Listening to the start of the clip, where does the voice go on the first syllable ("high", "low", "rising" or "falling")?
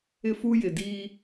high